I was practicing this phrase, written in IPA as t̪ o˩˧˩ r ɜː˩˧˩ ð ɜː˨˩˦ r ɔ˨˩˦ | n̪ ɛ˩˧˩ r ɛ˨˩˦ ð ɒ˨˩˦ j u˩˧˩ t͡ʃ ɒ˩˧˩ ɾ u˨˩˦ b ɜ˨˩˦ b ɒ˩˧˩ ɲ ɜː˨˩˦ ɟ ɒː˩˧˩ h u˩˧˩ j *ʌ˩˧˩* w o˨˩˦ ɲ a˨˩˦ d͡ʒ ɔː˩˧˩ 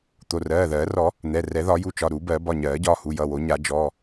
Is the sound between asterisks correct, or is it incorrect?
correct